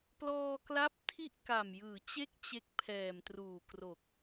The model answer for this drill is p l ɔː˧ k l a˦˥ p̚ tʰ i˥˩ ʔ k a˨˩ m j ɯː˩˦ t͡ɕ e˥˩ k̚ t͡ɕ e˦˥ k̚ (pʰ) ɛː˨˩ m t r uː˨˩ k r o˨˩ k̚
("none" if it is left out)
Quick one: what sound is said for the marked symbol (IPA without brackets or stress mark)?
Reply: pʰ